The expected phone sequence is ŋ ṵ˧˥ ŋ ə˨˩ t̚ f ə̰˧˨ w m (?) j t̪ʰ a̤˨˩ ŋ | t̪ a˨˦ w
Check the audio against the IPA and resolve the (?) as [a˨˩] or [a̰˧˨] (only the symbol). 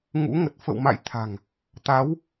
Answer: a̰˧˨